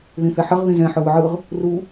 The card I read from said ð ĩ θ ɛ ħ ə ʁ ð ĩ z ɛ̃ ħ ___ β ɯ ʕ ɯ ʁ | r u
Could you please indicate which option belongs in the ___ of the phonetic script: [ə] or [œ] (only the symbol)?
œ